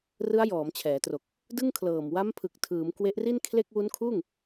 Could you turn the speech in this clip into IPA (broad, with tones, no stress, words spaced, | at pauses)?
rɯ˦˥a̯jɔː˩˦mt͡ɕʰɛː˩˦tro˨˩k̚ | dɯ˥˩ŋkʰlɤː˨˩m wa˦˥mpʰɯ˨˩k̚ tʰɯː˩˦m kwe˦˥ʔri˥˩nkʰle˥˩k̚ wu˦˥nkʰuː˥˩ŋ